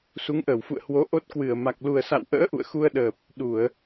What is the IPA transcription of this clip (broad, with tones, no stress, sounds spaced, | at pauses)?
s u˨˦ ŋ ʔ əː˧˩ w f ṵ˧˨ ə̯ h w o˨˦ ʔ o˦˥ t̚ k w ɨ˧˩ ə̯ m a˨˩ k̚ l u˨˩ ə̯ s a̰˧˨ w ʔ ə̰ː˧˥ ʔ ṵ˧˨ ə̯ x u˧ ə̯ ɗ əː˨˩ p̚ | ɗ u˧˩˨ ə̯